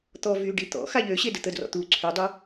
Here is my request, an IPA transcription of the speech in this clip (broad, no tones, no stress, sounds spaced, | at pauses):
t̪ ɔ v y ɖ i t̪ ɔ̰ x a ʎ ø ɕ e d ə t̪ ə d r ɔ̰ t̪ u ǀʰ y dˤ u